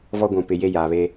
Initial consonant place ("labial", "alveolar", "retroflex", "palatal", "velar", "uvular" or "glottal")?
labial